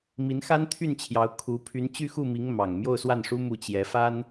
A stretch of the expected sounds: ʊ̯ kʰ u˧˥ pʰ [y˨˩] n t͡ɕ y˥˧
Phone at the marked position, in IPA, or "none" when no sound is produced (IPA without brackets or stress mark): y˧˥